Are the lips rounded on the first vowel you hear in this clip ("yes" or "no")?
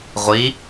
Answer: no